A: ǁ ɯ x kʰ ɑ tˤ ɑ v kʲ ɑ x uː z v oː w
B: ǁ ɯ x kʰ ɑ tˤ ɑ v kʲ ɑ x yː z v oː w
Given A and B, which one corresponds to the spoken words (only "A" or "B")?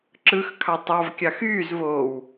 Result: B